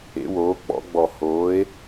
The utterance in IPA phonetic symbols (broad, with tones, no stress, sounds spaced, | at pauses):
ḛ˩˥ w oː˩˥ k͡p ɔ̰˩˥ ɡ͡b ɔ˧˩˧ h oː˩˥ e̯